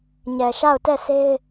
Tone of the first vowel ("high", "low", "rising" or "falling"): low